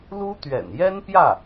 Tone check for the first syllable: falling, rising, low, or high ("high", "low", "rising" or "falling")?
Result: high